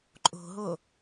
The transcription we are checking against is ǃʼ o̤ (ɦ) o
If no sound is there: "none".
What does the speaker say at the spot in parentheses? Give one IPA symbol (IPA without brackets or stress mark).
ɦ